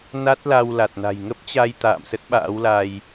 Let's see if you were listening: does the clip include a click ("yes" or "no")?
no